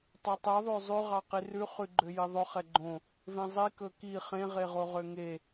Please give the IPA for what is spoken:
tˤɛtˤɛ ðˤøzˤʉ ʁɑqirʉ χʉɡ͡ǃøjiðˤɵ χɛɡ͡ǃõ | vẽzˤi kɵki χẽ ʁeʁoʁøŋe

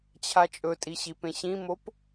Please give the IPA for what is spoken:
t͡ɕʰat͡ʃʼɵtʼi ɕipẽɕĩmop

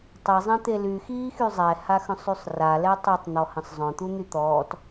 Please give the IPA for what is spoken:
tˤezˤɛ̃t̪e lyxiːxy zˤɛhaxœ̃sˤysˤ ralɛ tˤøtˤn̪ɔhə̃sˤ zˤœ̃t̪un̪y t̪ɔːt

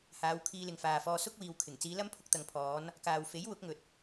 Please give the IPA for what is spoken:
haː˨˧wkʰiː˧lɪ˨ŋ faː˨ fɔː˧ sʊ˥k̚wiː˨wkʰɪ˨˩ŋ t͡siː˨˧lɐ˥m pʰʊ˧k̚t̪ɐ˨ŋpʰɔː˨˧n | kaː˨w fe˨˥j wʊ˨˥k̚ŋɵ˨t̚

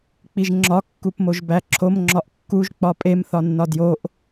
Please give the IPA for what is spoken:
k͡piʒŋ͡ǁɒ kːupmoʒbæǁʰom ŋ͡ǁɒʔkːuʒ k͡pɒpʼem θɒnːɒdjoʔ

